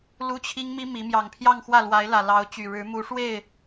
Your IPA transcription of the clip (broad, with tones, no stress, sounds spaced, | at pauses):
l u˥ t͡ɕʰ i˥ ŋ m i˥ m i˧˥ m j ɑ˨˩ ŋ pʰ j ɑ˥˧ ŋ x w ä˥˩ l w a˧˥ ɪ̯ l ä˨˩ l ɑ˧˥ ʊ̯ t͡ɕ y˨˩ ɻ ɻ̩˧˥ m u˧˥ ʂ w e˥˩ ɪ̯